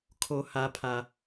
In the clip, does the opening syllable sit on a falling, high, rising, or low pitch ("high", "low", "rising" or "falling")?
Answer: high